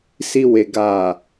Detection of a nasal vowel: absent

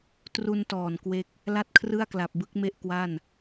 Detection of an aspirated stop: present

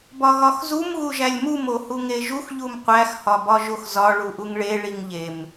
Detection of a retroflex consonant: present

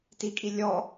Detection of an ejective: present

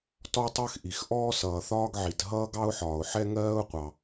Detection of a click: absent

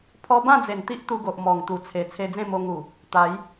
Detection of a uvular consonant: absent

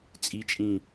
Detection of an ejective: present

